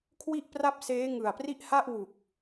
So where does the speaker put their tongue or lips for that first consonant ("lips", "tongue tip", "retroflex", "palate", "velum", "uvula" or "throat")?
velum